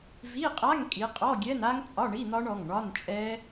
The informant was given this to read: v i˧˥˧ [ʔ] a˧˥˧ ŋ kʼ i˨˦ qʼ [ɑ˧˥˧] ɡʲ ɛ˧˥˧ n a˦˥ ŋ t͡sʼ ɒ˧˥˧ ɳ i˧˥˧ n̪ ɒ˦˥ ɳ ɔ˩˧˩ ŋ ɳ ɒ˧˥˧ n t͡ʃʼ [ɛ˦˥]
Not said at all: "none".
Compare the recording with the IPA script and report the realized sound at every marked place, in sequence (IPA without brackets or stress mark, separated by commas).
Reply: qʼ, ɔ˧˥˧, ɛ˦˥